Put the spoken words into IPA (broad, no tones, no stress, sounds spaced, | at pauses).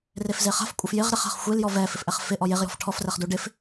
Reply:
r e f z e χ a̤ f kʷʼ ɪ f j ɪ ʁ ɾ ɪ χ a̤ χ xʷ e l j ɔ v ɛ f ɪ f ʔ ɛ χ f ɪ ʔ ɔ j e ʁ j ɔ̤ f ʈʰ ɔ f r ɛ χ d u ɖ ɪ f